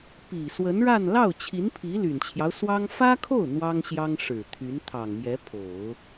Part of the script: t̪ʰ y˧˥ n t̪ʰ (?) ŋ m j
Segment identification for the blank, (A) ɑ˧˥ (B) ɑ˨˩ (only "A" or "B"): B